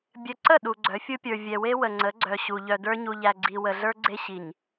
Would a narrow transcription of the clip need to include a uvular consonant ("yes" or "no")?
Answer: no